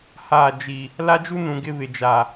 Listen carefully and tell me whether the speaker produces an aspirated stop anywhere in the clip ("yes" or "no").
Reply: no